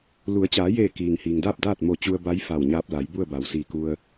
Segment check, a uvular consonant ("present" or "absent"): absent